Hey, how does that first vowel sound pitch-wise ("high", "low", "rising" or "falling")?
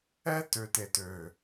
high